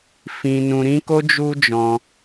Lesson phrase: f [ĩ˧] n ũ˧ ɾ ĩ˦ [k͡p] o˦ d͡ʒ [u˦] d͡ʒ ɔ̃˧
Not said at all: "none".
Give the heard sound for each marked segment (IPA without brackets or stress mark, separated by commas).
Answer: ĩ˧, k, u˦